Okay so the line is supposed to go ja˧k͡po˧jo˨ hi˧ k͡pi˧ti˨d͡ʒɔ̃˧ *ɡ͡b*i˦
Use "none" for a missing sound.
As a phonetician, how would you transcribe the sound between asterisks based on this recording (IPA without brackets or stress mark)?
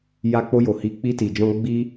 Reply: ɡ͡b